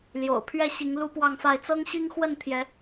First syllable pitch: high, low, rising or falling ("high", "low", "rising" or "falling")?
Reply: low